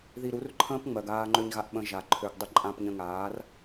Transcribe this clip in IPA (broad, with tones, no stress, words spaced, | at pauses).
ði˧ɾu˨˦rǃʰə̃ː˦pŋ͡mɜ˨ɡ aː˧ŋ͡ǃø˧ɲɣa˧ʔ ɓə̃˧ʒa˨ ǃʰø˨ɡdˤə˧ ǃʼã˧pɲə̃˧ŋaː˨˦r